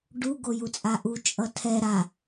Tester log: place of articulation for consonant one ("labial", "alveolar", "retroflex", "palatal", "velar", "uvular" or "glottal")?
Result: retroflex